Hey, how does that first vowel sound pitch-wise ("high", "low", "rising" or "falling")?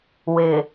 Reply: low